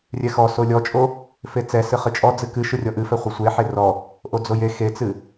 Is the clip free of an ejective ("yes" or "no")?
no